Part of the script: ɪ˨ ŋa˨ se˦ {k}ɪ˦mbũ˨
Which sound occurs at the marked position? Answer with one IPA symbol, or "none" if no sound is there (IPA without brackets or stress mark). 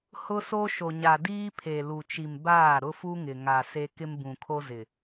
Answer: k